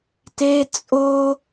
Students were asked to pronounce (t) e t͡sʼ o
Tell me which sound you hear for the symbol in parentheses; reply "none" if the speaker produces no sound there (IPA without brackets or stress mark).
t